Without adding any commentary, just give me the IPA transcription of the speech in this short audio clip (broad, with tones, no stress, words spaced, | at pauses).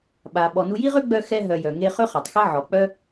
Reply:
ɓa˩ ɓɔ˩nu˧ji˥ʁø˥ ɡ͡bœ˧xɛ˧ɦœ˩ jœ˩ ŋe˧ χø˥χa˩tˤxɛ˥ ʕɔ˩k͡pœ˥